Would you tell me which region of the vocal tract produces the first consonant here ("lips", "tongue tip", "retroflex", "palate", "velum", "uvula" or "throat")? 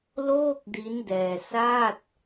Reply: tongue tip